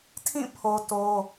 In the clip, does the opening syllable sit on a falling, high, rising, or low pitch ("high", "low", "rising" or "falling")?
falling